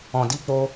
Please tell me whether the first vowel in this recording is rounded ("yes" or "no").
yes